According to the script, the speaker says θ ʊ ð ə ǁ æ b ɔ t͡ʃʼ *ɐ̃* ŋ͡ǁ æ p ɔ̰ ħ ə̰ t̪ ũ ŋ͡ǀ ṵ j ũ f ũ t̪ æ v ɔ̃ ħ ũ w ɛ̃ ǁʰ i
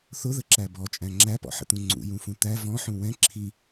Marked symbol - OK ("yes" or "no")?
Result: no